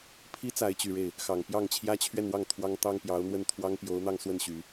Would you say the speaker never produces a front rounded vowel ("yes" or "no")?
no